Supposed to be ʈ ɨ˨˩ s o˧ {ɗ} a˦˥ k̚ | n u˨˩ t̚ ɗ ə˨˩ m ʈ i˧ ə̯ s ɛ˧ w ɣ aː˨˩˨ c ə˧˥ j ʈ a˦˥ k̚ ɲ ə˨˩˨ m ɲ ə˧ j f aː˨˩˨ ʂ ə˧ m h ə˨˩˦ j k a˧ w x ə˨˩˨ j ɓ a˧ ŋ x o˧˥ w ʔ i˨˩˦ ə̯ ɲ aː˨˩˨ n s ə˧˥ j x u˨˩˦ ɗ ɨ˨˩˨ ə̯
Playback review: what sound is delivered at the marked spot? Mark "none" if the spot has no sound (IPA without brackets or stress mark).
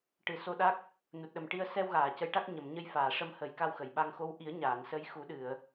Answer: ɗ